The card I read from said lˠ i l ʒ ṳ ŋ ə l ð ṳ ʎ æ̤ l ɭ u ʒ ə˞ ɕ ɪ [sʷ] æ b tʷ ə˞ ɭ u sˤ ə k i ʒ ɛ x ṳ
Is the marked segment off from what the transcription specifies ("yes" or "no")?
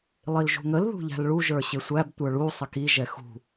no